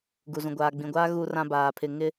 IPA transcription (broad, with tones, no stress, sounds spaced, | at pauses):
ɡ u˨ z ũ˨ ɡʷ aː˨ ɡ͡b ĩ˨ ɡʷ aː˦ ɣ u˦ r ã˦ b aː˨ pʰ ɪ˨ ŋ ɪ˦